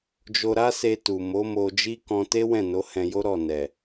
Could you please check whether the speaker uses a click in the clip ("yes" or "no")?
no